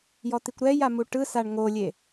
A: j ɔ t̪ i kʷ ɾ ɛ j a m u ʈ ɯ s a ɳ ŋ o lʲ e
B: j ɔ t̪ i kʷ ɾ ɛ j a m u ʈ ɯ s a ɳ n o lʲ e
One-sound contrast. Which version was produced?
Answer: A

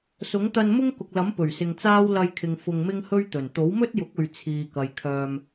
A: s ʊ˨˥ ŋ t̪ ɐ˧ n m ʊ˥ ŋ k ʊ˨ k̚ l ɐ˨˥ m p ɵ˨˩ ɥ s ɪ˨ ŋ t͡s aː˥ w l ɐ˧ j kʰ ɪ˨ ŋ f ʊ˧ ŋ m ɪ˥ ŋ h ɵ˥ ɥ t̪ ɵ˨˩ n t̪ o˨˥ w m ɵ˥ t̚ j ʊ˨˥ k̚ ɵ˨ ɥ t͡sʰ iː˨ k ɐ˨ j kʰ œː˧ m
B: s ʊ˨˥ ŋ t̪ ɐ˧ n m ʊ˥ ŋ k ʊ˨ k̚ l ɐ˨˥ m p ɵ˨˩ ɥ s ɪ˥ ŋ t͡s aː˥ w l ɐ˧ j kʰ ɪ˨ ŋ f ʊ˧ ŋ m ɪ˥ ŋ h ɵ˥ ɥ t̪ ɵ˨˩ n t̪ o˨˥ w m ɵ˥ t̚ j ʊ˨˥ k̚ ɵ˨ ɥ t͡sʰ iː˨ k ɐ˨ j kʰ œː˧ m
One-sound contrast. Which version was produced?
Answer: A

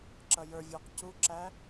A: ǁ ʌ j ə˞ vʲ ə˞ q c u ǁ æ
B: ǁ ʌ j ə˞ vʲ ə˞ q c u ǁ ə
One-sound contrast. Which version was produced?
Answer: A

